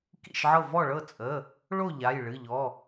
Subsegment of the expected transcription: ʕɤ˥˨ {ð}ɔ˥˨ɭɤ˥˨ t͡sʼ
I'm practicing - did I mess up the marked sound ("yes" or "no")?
yes